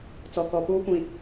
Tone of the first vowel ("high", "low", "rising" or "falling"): low